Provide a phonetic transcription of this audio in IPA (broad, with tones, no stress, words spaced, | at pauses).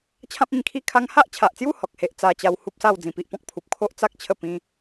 t͡ɕʰã˦p̚ĩ˥˧ŋkʰi˥˧kʰa˦ŋ ha˦ʔt͡ɕʰa˨ʔt͡sju˥˧ hɔ˨k̚he˦ʔ t͡sa˧t͡ɕa˧w hu˦p̚sa˥˧w d͡zĩ˧pi˦ʔpɔ̃˦k̚ pʰu˨p̚ kʰo˦ʔt͡sa˦k̚ t͡ɕʰə˥˧pĩ˧